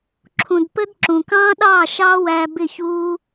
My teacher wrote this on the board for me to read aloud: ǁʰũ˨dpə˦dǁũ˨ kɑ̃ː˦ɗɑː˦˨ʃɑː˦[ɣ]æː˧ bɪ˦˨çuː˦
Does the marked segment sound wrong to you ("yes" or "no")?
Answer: yes